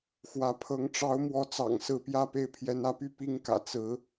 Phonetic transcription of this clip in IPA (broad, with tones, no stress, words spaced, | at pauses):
xwä˧˥pʰɤ˧˥ŋ ʈ͡ʂɑ˧˥ʊ̯ mwɔ˧˥t͡sɑ̰˨˩ŋ sɹ̩˥˧ pjä˥˧pe˥˩ɪ̯ pʰjɛ˧˥nä˧˥py˥˩ pi˥ŋkä̰˨˩ t͡sɹ̩˧˥